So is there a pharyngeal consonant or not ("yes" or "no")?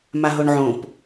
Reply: yes